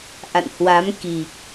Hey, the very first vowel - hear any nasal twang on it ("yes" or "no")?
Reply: no